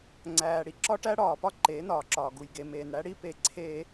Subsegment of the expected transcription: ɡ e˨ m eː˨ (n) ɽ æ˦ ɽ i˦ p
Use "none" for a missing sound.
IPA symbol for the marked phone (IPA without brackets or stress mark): n